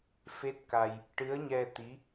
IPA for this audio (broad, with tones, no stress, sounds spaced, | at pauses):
f e˦˥ t̚ k a˧ j | ʈ ɨ˧˥ ə̯ ɲ ɛ˧ t̪ i˧˥